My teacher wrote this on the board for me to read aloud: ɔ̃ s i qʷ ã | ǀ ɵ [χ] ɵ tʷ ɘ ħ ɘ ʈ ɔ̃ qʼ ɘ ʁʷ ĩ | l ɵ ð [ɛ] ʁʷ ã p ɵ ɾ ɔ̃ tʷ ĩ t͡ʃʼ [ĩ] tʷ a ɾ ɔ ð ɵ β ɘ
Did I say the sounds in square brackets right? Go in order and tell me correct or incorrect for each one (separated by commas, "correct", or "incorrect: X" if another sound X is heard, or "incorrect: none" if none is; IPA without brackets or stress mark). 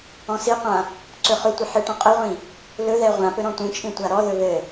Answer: correct, correct, correct